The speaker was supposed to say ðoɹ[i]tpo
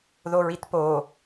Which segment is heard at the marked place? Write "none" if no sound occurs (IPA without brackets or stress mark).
i